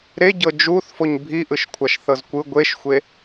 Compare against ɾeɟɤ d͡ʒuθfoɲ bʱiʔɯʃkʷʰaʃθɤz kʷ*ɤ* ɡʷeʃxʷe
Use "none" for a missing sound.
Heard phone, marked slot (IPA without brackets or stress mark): ɯ